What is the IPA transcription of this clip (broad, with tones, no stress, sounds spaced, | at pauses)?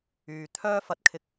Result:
yː˨ t̪ʰ œː˥ f ɐ˨˥ t̚ kʰ ɪ˧ k̚